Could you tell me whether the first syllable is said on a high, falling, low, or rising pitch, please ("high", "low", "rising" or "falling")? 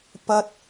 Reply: high